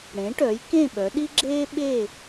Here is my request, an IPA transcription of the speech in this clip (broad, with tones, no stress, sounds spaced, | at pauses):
ɽ ẽ˩˥ ʈ œ˩˥ j k ẽ˥˨ ɓ œ˩˥ ɗ i˥ ɡ͡ǁ eː˥ ɓ eː˥˨